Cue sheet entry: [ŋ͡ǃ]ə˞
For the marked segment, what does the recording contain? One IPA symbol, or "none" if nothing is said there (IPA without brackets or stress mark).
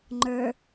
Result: ŋ͡ǃ